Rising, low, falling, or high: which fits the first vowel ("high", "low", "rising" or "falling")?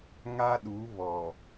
high